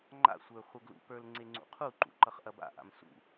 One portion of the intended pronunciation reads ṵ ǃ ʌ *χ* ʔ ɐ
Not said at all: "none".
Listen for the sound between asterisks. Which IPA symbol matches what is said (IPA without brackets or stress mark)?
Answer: χ